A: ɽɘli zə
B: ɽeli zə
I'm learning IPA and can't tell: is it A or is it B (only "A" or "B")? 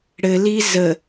A